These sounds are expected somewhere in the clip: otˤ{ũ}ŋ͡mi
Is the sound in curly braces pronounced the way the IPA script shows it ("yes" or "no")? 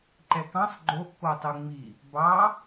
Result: no